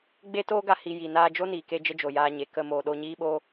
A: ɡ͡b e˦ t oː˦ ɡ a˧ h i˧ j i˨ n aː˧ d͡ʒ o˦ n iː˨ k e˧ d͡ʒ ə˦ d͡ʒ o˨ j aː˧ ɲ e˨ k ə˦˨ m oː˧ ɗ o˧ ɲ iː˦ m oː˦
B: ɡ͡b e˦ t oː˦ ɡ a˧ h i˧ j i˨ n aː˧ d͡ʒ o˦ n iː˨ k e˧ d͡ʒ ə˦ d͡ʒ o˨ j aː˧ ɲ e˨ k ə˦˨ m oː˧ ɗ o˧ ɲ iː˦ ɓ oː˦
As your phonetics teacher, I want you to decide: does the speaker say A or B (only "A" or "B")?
B